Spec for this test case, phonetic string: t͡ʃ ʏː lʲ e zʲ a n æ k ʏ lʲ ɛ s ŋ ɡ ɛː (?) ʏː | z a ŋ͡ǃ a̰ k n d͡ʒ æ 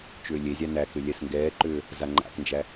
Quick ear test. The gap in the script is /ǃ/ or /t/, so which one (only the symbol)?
ǃ